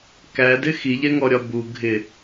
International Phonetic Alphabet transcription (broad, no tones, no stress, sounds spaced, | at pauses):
k æ d ɪ x i ʎ ɛ ŋ ɔ ɾʲ ɒ b u ɡʱ ɪ